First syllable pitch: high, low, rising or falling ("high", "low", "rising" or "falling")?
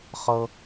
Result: high